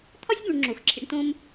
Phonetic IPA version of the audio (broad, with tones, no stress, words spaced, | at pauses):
t̪ʰɒ˥sʲbũ˨ɳ ŋ͡ǁo˩xǁʰḭ˨ɳtõ˦m